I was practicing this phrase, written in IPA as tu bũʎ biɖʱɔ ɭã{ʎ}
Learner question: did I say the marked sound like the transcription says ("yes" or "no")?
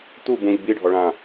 no